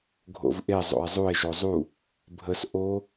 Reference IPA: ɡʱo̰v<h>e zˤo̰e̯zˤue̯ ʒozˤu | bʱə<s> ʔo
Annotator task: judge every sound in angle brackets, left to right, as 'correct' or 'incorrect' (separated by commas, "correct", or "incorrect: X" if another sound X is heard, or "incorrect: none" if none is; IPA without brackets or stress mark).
incorrect: ʔ, correct